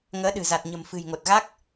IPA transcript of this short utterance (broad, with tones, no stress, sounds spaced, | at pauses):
ŋ əː˨˦ ɗ ɨ̤˨˩ z a˨˩ t̚ ɲ ə̤˨˩ m f ɨ̤˨˩ j ŋ o˨˩ t̚ ɣ a˦˥ k̚